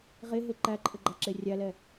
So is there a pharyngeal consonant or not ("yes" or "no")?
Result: no